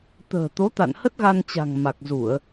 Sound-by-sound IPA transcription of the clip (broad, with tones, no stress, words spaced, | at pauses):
t̪ə̤ː˨˩t̪o˨˦t̪a̰˧˨nhə˦˥t̚ ɣa˧nt͡ɕa̤˨˩ŋma˨˩k̚zu˧˩˨ə̯